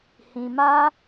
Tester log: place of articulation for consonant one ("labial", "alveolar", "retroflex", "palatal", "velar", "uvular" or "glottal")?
glottal